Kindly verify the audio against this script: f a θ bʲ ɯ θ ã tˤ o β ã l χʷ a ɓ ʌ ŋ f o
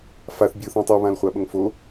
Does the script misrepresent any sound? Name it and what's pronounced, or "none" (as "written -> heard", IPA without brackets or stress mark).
none